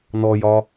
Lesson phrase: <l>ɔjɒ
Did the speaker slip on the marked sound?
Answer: yes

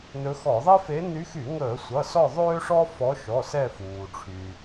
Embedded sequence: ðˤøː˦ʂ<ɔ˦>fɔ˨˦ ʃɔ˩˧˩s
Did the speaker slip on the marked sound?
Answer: no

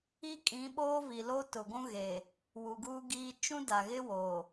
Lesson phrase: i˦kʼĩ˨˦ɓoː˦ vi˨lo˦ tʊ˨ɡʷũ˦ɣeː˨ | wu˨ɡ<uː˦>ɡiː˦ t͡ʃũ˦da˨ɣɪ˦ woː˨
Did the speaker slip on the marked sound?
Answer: no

